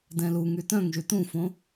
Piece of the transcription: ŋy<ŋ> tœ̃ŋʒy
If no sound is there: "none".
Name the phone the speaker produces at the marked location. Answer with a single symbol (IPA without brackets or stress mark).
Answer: none